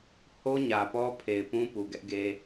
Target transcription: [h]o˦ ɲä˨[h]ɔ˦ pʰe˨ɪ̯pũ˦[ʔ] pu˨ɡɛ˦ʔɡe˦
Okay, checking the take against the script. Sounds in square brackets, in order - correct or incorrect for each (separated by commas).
correct, incorrect, incorrect